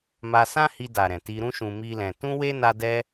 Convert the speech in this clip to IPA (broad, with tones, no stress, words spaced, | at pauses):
ma˧sã˦hi˧ da˨ɾɛ̃˨ ti˧ɾũ˦ʃũ˧ mi˦lɛ̃˧ tũ˦we˦ na˦dɛ˦